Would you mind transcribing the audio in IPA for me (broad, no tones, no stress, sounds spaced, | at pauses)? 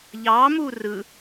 ʎ ɑ m u r ɯ